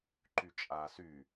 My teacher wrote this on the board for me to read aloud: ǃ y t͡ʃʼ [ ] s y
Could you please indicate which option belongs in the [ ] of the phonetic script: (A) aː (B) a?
A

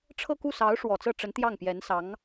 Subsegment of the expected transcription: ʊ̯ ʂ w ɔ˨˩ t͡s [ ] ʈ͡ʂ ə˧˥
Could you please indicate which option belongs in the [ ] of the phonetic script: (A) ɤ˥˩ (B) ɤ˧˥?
A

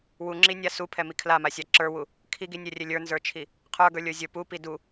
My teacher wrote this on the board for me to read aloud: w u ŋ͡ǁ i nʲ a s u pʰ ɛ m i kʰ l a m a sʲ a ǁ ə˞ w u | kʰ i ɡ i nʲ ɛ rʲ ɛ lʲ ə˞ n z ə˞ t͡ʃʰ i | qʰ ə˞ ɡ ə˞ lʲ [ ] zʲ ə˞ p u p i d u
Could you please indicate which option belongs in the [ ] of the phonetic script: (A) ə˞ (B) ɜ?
A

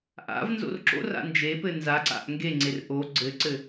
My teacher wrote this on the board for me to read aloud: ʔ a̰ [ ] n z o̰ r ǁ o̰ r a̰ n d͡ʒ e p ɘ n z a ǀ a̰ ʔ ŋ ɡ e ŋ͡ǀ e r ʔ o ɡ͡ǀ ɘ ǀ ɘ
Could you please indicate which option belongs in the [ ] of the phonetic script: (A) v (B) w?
A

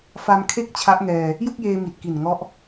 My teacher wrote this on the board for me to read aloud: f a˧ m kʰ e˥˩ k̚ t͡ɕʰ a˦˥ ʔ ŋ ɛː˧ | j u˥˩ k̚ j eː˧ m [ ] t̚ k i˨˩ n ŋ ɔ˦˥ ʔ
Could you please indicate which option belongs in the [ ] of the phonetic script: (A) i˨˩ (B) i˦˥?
A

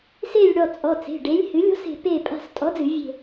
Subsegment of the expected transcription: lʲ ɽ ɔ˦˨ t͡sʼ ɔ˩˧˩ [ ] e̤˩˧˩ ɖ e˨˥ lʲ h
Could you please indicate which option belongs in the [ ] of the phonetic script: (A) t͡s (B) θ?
A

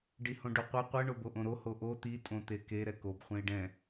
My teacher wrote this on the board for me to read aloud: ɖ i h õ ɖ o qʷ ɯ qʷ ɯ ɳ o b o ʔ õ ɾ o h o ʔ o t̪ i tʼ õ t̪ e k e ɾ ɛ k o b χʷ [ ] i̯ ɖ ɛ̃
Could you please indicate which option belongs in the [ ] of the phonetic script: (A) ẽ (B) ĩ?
A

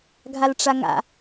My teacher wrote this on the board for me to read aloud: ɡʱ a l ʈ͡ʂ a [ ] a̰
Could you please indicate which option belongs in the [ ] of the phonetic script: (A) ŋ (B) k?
A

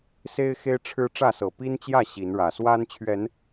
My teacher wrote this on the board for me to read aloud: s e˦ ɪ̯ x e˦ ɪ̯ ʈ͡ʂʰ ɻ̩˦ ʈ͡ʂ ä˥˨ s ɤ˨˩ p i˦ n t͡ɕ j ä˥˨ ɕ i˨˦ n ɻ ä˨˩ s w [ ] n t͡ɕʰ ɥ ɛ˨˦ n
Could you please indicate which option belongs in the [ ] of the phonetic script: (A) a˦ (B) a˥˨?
A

